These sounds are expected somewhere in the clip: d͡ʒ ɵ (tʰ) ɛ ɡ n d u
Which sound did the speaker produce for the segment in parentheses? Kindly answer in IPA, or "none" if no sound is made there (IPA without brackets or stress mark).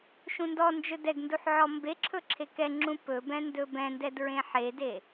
d